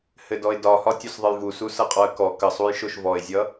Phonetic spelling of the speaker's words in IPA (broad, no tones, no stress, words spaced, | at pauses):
hɘdɔɪ̯dɒhɒ tʲosðˤəjvusu sʌqʼɔə̯kɔ kəsˤuj ʃoʃvɔɪ̯zʲʌ